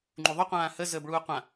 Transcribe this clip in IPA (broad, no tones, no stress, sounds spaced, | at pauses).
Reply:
ŋ͡ǃ u ðˤ o qʷ ãː h ə z əː b ɭ uː qʷ ã